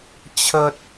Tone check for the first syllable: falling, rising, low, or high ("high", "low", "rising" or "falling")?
high